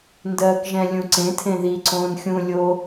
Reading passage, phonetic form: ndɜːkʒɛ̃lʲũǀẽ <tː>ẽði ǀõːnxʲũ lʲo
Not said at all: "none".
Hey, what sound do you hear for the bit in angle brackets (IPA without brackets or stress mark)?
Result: tʰ